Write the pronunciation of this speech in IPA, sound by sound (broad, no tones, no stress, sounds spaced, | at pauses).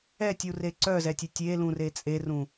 ɛ tʲ u r e ǀ œ z ɛ tʲ e tʲ e l ũ r e t͡sʼ e r ũ